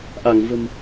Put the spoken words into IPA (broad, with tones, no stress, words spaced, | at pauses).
ʔa˧˩ŋvə̤˨˩m